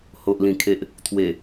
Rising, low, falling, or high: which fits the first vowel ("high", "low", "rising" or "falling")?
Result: low